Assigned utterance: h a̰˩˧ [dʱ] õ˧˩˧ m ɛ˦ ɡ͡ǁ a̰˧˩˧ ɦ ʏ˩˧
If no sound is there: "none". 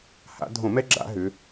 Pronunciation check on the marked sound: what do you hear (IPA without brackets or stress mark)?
dʱ